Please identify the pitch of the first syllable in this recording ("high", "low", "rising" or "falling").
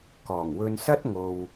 low